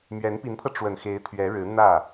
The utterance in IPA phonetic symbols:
mɥɛ˧˥npi˧˥npʰɤ˧ ʈ͡ʂwə˨˩nxe˧˥ɪ̯ t̪ʰɥɛ˧˥ɻɻ̩˧˥ n̪ä˥˩

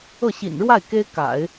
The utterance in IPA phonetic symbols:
ɤ˥˩ɕḭ˨˩nɻwa˥˩ɪ̯ ke˥ɪ̯ka̰˨˩˦ɪ̯

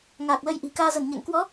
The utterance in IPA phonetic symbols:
ŋaː˨˩k̚lə˧jʔi̤˨˩ kaː˧zə˧˩nɲɛ̰˧˨ŋ kwɔ˨˦

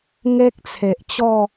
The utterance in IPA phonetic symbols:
ŋe˦k̚t͡sʰe˨ʔt͡ɕɔ˥˧

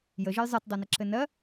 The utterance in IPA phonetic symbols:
jəʒɘj zˤɤtdˤonəǁɘ nɜ

